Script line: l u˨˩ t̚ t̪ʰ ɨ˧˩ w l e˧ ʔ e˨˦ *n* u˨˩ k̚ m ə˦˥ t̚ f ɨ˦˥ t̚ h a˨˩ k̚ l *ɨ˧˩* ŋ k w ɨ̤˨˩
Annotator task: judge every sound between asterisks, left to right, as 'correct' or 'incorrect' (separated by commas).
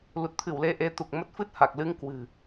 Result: incorrect, incorrect